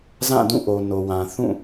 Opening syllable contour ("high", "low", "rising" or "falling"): falling